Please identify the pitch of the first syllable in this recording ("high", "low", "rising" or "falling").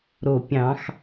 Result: low